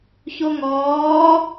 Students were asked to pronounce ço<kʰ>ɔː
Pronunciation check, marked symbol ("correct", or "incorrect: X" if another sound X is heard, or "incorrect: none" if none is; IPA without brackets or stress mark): incorrect: ŋ